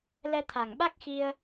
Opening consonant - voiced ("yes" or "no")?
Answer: yes